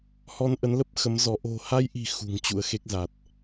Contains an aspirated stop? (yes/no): no